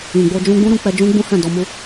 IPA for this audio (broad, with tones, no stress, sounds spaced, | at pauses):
ĩ˨ ɡ͡b o˧ d͡ʒ ũ˧ ɡ͡b ũ˦ ɾ ũ˧ k͡p ɛ˧ d͡ʒ ũ˦ ɡ͡b ũ˦ h ɛ̃˦˨ d ɔ˧ m u˦